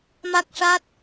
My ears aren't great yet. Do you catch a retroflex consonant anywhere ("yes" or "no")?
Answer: yes